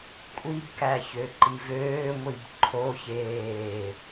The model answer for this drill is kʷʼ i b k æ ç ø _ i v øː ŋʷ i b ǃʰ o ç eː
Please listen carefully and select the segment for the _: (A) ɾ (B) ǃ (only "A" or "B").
B